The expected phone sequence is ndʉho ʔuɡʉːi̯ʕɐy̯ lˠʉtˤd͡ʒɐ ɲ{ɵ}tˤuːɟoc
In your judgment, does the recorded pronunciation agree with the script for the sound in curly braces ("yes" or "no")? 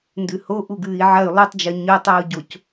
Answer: yes